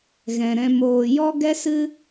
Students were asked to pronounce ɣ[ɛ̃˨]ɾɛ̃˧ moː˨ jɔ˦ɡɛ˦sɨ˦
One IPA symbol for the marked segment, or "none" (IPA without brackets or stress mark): ɛ̃˨